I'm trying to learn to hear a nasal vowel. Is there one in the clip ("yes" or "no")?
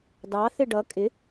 no